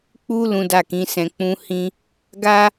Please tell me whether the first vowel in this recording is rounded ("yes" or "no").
yes